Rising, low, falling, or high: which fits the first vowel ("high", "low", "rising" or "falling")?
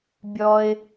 low